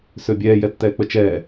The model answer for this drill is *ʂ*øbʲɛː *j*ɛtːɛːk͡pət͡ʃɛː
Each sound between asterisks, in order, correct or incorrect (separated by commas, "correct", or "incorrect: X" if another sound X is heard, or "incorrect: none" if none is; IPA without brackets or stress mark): incorrect: s, correct